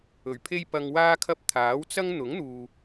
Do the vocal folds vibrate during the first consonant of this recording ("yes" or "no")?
yes